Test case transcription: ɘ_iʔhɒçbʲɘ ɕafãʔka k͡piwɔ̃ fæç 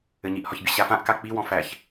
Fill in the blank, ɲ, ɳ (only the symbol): ɲ